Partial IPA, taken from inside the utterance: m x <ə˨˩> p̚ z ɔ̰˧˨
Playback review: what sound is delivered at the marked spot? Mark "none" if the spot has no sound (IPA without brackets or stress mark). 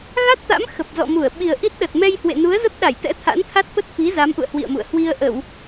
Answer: ə˨˩